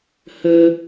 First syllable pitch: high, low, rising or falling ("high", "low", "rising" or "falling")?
high